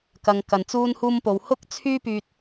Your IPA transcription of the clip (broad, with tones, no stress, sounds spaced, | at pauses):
k ɐ˧ ŋ k ɐ˨ n t͡s uː˥ n h uː˥ m p o˧ w h ʊ˥ k̚ t͡sʰ yː˥ p yː˧ t̚